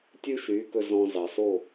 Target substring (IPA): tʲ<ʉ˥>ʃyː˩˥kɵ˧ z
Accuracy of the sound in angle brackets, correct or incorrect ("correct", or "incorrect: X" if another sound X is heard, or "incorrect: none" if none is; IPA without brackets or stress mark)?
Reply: correct